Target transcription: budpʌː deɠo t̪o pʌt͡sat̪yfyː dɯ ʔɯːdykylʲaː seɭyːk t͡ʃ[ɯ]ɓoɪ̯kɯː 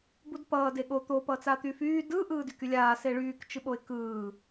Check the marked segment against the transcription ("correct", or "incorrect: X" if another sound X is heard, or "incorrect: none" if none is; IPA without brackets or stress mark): correct